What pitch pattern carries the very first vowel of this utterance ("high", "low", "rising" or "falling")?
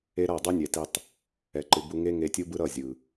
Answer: high